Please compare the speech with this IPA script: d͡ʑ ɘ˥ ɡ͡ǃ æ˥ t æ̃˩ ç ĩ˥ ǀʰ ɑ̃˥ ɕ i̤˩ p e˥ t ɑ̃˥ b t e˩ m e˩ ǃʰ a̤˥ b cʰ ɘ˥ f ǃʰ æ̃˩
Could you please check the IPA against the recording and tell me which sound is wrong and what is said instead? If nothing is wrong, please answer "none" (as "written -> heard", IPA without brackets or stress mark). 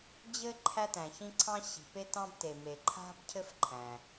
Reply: ɡ͡ǃ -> ǃʰ